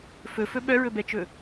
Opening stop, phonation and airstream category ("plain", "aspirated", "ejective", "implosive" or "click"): implosive